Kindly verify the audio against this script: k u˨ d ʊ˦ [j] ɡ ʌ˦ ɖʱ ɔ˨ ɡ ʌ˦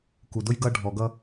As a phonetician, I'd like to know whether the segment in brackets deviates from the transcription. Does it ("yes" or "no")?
no